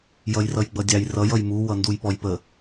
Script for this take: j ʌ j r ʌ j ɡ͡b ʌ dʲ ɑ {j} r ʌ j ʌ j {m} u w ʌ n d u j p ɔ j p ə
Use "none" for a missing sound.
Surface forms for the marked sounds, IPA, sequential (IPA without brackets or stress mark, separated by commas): j, m